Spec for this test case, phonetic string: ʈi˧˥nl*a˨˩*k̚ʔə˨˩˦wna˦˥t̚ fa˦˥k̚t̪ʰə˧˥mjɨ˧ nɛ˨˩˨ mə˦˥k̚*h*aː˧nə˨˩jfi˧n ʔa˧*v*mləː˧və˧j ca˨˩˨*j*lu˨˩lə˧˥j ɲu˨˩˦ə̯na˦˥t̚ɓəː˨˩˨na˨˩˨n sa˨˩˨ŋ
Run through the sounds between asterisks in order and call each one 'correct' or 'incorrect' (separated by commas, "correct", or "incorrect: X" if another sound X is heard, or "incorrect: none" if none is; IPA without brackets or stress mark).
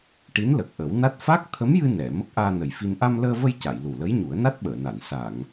incorrect: ə˨˩, incorrect: ʔ, incorrect: none, correct